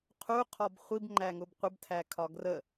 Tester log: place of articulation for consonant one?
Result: uvular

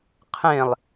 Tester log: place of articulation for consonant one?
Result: uvular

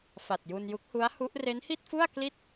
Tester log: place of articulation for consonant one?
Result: labial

